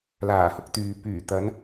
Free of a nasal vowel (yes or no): yes